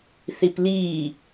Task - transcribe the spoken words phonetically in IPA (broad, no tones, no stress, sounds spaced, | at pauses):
θ i p l iː